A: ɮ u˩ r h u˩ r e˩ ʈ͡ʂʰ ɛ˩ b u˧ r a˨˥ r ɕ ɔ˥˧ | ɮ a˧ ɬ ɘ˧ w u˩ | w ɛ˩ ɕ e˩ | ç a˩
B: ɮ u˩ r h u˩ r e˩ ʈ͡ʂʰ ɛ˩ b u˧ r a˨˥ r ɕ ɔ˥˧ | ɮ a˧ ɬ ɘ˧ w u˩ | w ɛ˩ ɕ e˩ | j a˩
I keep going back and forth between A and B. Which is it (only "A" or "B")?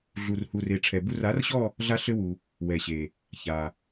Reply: A